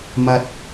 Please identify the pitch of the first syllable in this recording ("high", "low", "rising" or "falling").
high